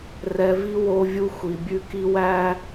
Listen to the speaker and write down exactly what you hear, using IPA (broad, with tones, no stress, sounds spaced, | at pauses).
r ɛ˨ v i˦ w o˦ vʲ u˦ xʷ i˨ bʲ ʉ˦ k i˦ w æ˦